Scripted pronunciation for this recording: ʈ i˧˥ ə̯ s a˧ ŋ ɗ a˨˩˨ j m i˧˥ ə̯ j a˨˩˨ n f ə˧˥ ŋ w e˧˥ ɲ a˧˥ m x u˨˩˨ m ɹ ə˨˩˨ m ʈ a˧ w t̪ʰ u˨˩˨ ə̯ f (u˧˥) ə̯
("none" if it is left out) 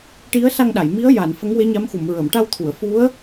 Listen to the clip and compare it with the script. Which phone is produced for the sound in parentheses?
u˧˥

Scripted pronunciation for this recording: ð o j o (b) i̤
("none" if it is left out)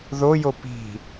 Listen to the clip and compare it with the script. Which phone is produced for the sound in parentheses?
p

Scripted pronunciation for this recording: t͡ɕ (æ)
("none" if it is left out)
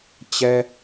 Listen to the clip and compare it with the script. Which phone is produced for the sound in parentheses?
ɛ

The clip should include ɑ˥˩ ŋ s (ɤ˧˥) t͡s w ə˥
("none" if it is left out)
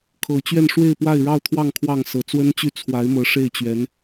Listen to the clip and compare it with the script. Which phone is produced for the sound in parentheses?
ɤ˧˥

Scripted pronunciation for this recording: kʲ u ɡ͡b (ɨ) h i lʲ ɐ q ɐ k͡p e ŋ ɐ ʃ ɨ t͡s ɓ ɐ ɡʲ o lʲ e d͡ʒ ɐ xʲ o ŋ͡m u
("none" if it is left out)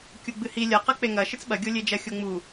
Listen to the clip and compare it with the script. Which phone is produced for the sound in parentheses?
ɨ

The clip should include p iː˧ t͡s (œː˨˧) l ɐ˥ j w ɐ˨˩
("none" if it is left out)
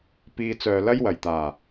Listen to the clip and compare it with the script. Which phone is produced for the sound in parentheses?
œː˨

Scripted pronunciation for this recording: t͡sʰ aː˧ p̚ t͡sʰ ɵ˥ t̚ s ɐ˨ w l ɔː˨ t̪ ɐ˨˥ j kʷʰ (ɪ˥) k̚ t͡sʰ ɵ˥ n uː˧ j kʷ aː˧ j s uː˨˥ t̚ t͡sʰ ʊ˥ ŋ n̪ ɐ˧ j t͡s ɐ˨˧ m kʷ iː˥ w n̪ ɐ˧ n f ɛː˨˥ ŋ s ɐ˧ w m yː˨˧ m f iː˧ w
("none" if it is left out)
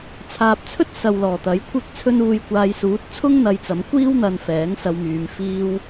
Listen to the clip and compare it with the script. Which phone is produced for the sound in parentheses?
ɪ˥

